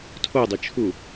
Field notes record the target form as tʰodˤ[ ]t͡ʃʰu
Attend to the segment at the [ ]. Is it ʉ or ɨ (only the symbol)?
ɨ